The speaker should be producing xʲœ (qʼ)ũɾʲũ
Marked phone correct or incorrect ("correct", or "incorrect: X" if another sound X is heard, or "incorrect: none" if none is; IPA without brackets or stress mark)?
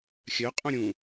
correct